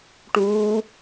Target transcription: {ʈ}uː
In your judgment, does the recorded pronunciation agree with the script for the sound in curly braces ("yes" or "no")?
yes